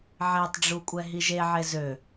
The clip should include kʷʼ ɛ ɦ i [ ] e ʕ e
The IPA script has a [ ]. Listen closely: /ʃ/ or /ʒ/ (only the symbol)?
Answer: ʒ